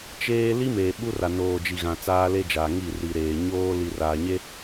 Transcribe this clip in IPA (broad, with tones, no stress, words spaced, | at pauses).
t͡ʃeː˦ li˦ meː˨ɓu˦ra˨ noː˨d͡ʒi˨ɣã˨ t͡saː˦le˦d͡ʒaː˨ŋi˦˨ ri˨ɾeː˨ ɲoː˦li˨ raː˨ɲe˦